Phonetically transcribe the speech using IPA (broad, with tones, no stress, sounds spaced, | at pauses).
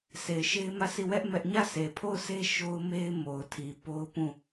sʰ e˨ ɪ̯ ʃ e˦ ɪ̯ m ä˦˨ sʰ i˦˨ w ɛ˦ ʔ m ɛ˦ ʔ ɲ ä˦˨ sʰ e˨ pʰ o˦˨ ʊ̯ sʰ e˦ ʃ o˦ ʊ̯ m e˦ ɪ̯ m o˨ ʊ̯ tʰ i˨ p o˦ ʊ̯ p ũ˦˨